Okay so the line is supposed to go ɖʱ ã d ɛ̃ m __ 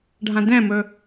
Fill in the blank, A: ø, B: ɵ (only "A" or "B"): B